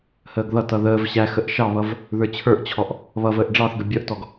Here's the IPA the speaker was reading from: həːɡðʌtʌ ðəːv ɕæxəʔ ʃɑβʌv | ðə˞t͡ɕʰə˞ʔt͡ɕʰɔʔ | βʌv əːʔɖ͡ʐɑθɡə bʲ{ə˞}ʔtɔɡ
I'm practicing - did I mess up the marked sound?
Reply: yes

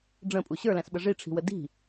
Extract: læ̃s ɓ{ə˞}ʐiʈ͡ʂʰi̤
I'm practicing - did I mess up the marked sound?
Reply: yes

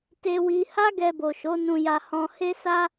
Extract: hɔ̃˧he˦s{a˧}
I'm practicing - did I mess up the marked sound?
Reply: yes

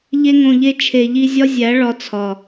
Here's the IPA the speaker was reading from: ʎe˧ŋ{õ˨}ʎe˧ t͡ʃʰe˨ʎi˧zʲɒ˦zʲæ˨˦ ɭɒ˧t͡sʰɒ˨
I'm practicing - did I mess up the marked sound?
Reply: no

